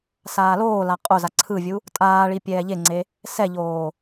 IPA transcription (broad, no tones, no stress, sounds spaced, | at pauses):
s aː l oː l a qʼ o z a ǀʰ ɯ vʲ u | tʼ aː ɭ i pʲ ɛː ʎ e ŋ͡ǀ e | s ɛ ʎ oː